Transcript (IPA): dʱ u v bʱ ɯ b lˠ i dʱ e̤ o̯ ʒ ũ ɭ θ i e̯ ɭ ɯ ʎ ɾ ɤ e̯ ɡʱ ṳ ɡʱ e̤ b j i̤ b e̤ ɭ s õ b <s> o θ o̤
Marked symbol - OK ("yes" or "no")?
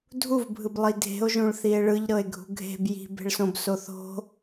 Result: yes